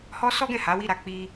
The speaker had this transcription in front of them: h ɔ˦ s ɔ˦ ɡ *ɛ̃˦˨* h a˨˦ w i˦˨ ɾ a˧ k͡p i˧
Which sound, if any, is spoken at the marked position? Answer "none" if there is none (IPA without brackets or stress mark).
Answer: ɛ̃˦˨